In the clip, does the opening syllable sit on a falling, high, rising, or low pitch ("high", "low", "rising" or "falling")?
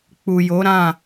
low